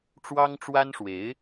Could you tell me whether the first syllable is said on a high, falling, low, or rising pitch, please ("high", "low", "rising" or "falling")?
high